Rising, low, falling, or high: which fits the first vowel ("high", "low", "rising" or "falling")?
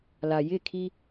low